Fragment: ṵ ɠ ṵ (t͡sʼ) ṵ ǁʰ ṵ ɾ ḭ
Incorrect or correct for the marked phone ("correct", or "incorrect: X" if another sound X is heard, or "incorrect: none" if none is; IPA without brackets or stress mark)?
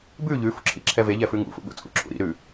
correct